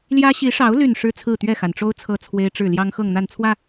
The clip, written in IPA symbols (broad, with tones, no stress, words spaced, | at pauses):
ljä˦ ɕi˨˦ʂɑ˨˦ʊ̯ ly˥˨nʂɻ̩˦ t͡sʰɹ̩˥˨t̪ɥɛ˥˨xa˩nʈ͡ʂo˦ʊ̯ t͡sʰɤ˥˨t͡sʰwe˦ɪ̯ʈ͡ʂɻ̩˥˨ ljɑ˦ŋxɤ˥˨ŋn̪a˥˨nt͡sʰwä˥˨